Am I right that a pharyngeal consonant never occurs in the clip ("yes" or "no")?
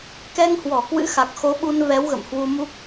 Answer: yes